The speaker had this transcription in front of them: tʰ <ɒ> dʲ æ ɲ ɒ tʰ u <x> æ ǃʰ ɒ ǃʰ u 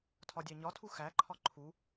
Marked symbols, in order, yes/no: yes, yes

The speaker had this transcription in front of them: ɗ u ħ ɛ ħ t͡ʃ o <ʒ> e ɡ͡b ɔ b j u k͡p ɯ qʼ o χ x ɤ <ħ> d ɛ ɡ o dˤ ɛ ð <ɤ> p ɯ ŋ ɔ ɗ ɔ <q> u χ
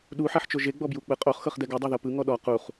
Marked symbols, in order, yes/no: yes, no, yes, yes

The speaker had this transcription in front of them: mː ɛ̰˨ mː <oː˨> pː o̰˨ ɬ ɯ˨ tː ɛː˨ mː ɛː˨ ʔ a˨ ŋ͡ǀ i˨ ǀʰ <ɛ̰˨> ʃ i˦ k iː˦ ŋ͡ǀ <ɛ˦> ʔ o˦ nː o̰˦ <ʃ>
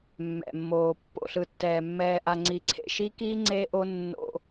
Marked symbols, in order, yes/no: yes, no, no, no

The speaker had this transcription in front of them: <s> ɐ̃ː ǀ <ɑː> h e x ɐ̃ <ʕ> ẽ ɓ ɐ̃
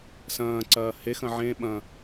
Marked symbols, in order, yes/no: yes, no, yes

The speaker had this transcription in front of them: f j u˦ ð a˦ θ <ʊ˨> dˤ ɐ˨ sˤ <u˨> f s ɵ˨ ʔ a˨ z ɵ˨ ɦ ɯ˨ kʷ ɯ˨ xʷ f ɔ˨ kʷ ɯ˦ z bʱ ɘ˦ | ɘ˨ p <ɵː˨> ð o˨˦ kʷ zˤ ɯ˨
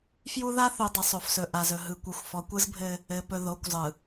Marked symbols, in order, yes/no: no, no, no

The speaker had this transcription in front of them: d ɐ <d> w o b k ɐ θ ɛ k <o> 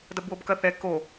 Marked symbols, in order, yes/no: no, yes

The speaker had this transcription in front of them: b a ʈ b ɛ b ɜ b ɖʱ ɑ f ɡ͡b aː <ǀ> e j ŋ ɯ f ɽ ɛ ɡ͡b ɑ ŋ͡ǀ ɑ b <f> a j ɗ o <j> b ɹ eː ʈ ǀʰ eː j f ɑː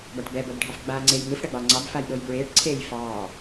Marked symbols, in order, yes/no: no, yes, yes

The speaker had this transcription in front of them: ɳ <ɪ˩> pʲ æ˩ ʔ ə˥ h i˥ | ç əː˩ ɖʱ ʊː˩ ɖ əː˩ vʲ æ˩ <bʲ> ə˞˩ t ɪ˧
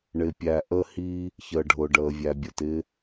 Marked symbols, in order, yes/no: yes, yes

